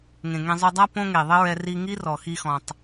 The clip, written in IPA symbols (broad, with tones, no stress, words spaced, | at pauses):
ŋẽ˨ŋẽ˧zˤu˧ dˤa˦ põ˦ŋe˨ðˤɘ˦ɹɛ˧ ri˧ŋi˦rɔ˨ xi˧xɔ̃˨tˤ